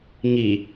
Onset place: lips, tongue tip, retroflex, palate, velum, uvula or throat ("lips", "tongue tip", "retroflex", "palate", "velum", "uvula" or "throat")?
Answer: velum